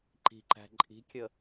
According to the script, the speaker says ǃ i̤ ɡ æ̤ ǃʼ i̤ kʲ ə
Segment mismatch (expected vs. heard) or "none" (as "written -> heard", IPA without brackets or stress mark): ɡ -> ǃ